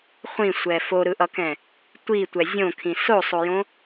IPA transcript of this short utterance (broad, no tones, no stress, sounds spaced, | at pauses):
χʷ ĩ sʷ ɛ f o ɾ ɯ ʔ ʌ k ɛ̃ | tʷ i tʷ ɛ zʲ õ kʰ ĩ s o sˤ o j õ